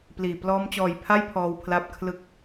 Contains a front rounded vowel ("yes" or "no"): no